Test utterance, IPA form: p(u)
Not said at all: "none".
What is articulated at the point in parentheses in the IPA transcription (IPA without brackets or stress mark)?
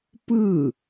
ɯ